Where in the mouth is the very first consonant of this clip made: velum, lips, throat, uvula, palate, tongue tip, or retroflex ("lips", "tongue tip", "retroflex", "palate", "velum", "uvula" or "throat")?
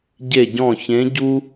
palate